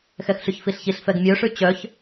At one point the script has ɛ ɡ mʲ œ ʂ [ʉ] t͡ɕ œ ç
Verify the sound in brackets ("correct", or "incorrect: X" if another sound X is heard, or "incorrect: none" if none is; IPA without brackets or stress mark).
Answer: correct